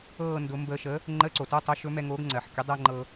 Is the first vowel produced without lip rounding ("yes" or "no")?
yes